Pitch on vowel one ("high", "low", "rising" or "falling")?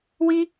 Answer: high